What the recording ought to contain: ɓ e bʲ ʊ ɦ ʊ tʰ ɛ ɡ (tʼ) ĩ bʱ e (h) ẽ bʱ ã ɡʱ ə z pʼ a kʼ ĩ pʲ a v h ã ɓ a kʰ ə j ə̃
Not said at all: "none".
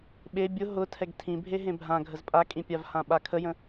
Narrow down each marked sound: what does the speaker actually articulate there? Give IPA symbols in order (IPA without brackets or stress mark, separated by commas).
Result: tʰ, ɦ